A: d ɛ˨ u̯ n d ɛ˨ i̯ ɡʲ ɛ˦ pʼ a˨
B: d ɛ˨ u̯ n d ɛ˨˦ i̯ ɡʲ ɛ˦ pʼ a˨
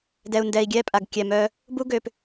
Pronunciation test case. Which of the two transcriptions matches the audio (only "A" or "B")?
A